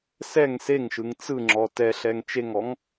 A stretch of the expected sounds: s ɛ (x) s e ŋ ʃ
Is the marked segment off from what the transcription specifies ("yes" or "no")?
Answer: yes